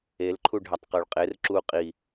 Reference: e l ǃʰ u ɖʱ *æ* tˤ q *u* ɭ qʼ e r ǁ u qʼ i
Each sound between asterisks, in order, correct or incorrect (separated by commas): correct, incorrect